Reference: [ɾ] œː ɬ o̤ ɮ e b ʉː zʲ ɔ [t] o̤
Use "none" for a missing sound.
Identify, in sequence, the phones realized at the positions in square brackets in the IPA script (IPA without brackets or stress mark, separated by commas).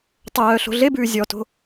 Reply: tˤ, t